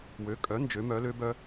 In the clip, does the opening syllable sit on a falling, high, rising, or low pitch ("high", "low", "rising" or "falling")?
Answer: rising